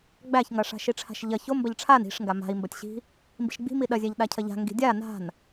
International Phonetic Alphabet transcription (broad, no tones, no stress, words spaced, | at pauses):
ɡ͡bæçŋɐʂa̤ ʃiʈ͡ʂʰa̤ʃʎɐ çombɐʎ ʈ͡ʂʰan i̤ʂŋɡa ma̤i̯mbɐtʲɕi̤ | mbi̤ʃɡ͡bi̤mi ɗɐzʲæʎ ɗacʰɐʎa̤ ŋɡi̤dʲa na̤n